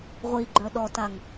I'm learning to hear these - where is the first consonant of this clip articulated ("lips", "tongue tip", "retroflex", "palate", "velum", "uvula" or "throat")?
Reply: uvula